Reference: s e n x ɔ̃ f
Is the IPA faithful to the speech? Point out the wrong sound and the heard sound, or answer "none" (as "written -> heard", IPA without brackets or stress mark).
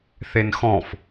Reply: s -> θ